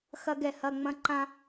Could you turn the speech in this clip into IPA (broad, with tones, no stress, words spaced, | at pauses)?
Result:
xɐ˧ɡɛ˧˩˧ hɐ˩˧˩ ŋ͡mɐ̃˧ ǃã˧